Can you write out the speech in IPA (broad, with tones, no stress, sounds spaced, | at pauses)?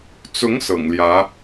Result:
t͡s ʊ˧˥ ŋ s ɤ̰˨˩ ŋ l j ä˧˥